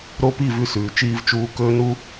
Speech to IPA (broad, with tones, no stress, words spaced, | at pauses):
ɾo˦pi˦˨ vʉ˦sʉː˨t͡ʃiː˦vt͡ʃuː˦ kɵː˦nu˦